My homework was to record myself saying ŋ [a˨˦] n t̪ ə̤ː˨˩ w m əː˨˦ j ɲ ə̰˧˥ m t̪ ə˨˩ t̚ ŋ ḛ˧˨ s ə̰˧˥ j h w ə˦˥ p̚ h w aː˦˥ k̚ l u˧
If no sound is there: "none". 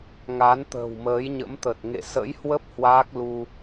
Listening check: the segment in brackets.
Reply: a˨˦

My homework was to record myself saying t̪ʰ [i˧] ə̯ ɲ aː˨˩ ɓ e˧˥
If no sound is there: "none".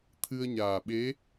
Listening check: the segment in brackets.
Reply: ɨ˧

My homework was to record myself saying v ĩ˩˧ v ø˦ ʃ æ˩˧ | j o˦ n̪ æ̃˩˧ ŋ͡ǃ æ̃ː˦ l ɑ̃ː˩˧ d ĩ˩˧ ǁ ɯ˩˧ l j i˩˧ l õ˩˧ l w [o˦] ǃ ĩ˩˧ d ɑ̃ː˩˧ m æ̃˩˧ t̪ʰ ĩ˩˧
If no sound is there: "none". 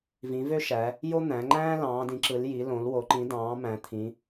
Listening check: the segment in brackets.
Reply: o˩˧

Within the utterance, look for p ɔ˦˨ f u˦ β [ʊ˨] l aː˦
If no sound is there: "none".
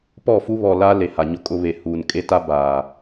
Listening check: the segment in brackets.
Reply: ɔ˨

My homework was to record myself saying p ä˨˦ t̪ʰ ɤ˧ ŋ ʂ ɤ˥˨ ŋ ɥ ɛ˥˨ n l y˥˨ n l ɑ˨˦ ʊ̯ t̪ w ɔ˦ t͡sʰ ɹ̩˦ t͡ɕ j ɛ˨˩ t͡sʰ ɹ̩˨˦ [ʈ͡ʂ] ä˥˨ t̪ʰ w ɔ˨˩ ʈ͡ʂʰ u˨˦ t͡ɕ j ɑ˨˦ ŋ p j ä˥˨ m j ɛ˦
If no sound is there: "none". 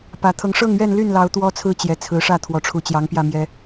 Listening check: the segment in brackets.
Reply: ʂ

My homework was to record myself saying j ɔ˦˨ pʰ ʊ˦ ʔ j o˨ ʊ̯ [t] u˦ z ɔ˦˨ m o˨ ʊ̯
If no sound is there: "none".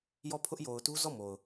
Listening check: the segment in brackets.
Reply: t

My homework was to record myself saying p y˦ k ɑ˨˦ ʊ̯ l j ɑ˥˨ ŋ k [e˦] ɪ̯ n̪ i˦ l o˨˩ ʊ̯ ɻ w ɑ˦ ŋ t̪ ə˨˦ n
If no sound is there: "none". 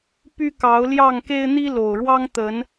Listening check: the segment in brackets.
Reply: e˦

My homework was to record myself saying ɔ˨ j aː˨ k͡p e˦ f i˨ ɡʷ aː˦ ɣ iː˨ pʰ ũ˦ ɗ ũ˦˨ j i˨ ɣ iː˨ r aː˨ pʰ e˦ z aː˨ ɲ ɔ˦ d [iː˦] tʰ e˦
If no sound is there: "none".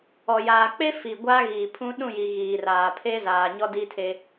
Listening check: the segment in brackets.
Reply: i˦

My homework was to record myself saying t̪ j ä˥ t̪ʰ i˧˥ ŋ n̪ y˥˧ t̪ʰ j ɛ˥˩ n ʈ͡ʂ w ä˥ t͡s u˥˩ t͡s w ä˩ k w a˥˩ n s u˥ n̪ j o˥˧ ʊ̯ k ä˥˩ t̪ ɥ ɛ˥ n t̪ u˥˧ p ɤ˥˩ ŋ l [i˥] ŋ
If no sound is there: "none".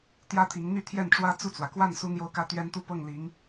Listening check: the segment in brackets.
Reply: i˧˥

